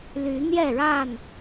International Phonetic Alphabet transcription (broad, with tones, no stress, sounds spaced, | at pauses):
l y˨˦ n̪ j ɛ˥˨ ɻ a˥˨ n